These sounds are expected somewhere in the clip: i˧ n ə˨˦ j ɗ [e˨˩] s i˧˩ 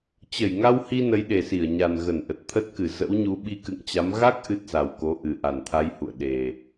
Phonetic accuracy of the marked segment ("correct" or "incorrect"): correct